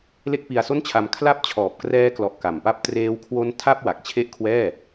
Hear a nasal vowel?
no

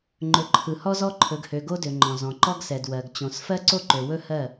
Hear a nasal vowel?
yes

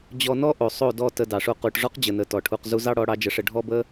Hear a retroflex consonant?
yes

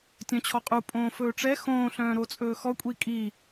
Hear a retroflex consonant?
yes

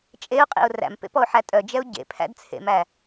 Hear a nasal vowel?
no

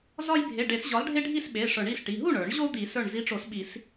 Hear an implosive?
yes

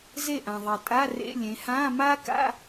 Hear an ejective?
yes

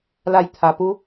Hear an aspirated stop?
yes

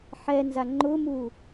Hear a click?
yes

